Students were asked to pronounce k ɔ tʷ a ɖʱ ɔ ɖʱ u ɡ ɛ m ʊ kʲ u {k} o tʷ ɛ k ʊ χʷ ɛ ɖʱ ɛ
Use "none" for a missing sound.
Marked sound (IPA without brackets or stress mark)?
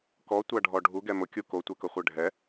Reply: k